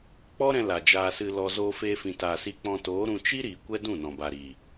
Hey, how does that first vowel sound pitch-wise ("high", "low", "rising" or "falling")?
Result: high